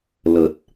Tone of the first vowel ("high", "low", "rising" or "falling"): low